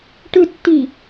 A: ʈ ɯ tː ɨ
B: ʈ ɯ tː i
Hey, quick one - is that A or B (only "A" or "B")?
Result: B